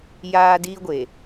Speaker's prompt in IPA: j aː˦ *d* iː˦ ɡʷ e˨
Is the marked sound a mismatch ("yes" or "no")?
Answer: no